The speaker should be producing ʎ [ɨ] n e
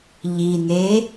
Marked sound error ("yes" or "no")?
yes